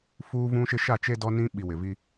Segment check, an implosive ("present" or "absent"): present